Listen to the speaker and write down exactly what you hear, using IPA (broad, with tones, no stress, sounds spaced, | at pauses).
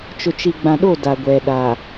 t͡ʃ ʊ˨ t͡ʃ i˨ ɡ͡b ã˨ ɗ o˦˨ d a˨ ɡʷ ɛ˨ ɗ a˨